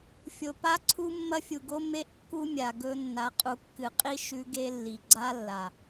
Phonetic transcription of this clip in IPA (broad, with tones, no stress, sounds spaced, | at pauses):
fʲ o˨ p a˦ ǀʰ u˦ mː ɐ˦ fʲ u˨ ɡ o˦ m e˦ ʔ kː u˦ mʲ a˨ ɡ ɵ˦ nː a˨ qʼ u˨ kː ɨ˨ qʼ i˦ ʃ ʉ˦ ɡ e˦ lː i˨ ɡ͡ǀ a˦ lː a˨